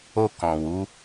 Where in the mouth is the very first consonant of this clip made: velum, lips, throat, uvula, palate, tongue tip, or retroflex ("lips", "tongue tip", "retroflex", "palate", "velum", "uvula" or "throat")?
velum